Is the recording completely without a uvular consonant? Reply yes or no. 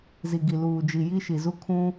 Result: yes